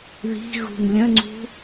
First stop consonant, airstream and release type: click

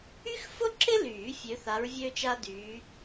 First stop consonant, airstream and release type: click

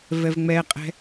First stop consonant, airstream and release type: ejective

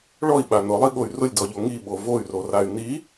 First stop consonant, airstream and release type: implosive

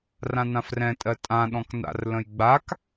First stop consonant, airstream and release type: ejective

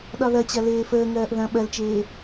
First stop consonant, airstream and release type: implosive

